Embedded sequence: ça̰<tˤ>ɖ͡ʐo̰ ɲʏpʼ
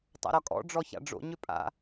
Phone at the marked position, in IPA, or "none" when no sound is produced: none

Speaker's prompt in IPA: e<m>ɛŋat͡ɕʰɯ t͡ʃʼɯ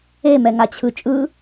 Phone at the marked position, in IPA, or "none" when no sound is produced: m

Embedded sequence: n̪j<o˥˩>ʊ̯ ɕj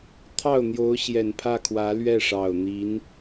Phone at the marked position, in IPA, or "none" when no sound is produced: o˧˥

